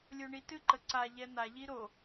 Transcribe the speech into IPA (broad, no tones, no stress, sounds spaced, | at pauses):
lʲ o ɳ i t ɨ ǃ ə ǀ a ʎ ɛ n̪ a ʎ i ɾ o